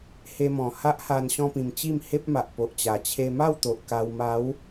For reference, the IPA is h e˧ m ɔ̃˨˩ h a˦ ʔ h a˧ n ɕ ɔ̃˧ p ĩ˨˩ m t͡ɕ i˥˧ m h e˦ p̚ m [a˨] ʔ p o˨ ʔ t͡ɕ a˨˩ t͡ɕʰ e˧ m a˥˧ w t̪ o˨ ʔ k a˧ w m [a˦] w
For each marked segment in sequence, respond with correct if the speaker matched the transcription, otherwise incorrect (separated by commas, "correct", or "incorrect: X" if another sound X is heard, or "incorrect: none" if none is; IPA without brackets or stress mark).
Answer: correct, incorrect: a˨˦